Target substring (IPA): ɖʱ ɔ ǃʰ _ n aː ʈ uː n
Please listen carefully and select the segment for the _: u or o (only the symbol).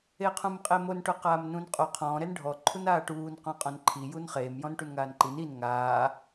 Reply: u